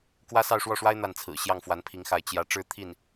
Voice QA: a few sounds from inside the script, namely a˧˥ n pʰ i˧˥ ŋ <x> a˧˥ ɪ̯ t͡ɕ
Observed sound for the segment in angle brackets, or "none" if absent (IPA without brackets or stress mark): x